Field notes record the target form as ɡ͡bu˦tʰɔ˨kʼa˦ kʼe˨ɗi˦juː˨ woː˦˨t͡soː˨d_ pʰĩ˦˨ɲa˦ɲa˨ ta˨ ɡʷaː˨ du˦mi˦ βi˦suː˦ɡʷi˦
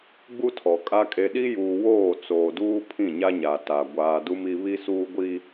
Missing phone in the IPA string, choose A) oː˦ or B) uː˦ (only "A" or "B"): B